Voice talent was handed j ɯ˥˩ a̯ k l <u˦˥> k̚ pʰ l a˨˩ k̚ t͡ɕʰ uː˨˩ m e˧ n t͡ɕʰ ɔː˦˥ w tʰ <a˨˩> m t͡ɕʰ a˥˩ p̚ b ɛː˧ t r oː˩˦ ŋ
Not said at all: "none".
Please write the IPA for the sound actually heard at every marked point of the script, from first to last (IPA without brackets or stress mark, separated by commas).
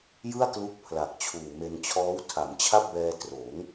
u˦˥, a˩˦